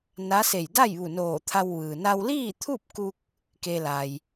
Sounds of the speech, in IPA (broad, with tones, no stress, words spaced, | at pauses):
na˧˥se˧˩j da˥˨jʋu˧˩noː˧˩ t̪ʰa˧wʋɯː˩ na˧wliː˥˨t̪ʰu˥˨p̚ku˧k̚ | ke˧la˩j